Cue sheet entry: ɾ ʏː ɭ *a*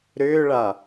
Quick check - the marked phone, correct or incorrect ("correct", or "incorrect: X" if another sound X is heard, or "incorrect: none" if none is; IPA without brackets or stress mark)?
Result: correct